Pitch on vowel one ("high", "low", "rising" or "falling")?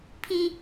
high